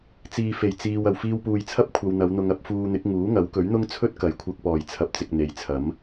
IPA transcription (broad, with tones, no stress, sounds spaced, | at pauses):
t͡s iː˨ f e˨˩ j t͡s iː˨ w ɐ˨˩ w f iː˧ w p uː˨ j t͡sʰ ɐ˥ p̚ kʷʰ ɐ˧ w n̪ ɐ˨˧ w n̪ ʊ˧ ŋ ɐ˧ p̚ f uː˧ n̪ ɪ˨˥ k̚ ŋ uː˨˥ ŋ ɐ˨˥ w k ɵ˨˥ ɥ n̪ ʊ˥ ŋ t͡sʰ ɵ˥ t̚ k ɐ˨˥ j kʷʰ ɐ˧ k̚ p ɔː˨˩ j t͡sʰ ɐ˨ p̚ t͡s ɪ˨ k̚ n̪ e˨ j t͡sʰ ɐ˨˥ m